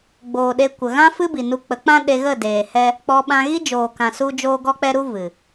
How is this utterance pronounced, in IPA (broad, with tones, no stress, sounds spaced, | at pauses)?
ɡ͡b oː˨ ɗ e˧ kʷ ə˨ ɣ ã˦ f ɨ˦ b i˨ n u˧ k͡p ə˨˦ k͡p ã˦ ɗ e˧ ɣ ə˦˨ d eː˨ h ɛ˦ | k͡p ɔ˧ ɓ ã˧ ɣ i˦ d͡ʒ oː˨ k ã˨ s u˧ d͡ʒ oː˧ ɡ ɔ˧ k͡p ɛ˧ ɾ u˧ v ɨ˨